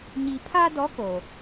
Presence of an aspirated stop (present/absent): present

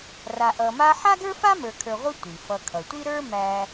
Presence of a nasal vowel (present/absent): absent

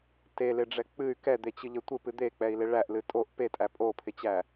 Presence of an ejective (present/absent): present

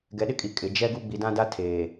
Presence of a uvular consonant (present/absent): absent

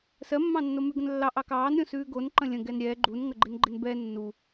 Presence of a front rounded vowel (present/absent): absent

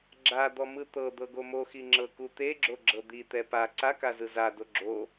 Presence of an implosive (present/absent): absent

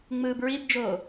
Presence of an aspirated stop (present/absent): absent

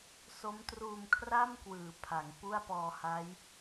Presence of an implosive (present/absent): absent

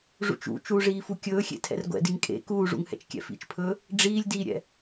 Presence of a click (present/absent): absent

